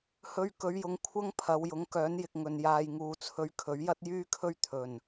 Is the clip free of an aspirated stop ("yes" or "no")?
no